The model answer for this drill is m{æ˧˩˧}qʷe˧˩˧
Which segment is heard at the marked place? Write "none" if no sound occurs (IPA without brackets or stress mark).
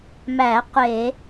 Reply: æ˧˩˧